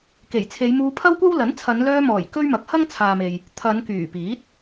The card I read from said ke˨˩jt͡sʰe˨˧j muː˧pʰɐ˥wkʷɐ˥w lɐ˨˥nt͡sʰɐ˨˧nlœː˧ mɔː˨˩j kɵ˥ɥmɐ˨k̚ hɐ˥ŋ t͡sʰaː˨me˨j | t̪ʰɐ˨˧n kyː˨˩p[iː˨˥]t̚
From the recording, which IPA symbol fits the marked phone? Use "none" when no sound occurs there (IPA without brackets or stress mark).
iː˨˥